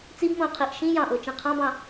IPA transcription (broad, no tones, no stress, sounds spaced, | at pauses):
t͡s i b m õ ə̯ qʰ i ʔ ʃ ĩ j ɑ̃ ʔ o t͡ʃ ĩ qʰ ɑ̃ b ɑ̃